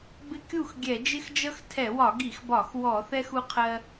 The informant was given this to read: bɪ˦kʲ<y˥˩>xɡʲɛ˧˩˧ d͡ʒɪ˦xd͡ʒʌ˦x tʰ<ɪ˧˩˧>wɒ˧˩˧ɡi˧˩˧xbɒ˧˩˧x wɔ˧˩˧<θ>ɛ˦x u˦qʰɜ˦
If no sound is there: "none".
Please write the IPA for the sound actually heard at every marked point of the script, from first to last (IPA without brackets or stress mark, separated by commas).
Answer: u˥˩, ɛ˧˩˧, θ